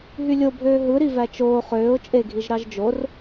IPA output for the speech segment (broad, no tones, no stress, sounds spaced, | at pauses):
ɦ y lʲ o bʱ øː ɦ ɯ ɾ i v æ t͡ʃ oː χ øː ʊ̯ t͡ʃʼ e ɡʱ i ʒ ɾ ɑ ʒ d͡ʒ o r